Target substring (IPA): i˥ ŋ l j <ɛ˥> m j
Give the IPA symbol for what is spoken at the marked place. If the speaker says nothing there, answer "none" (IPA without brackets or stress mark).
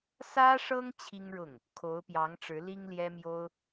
ɛ˥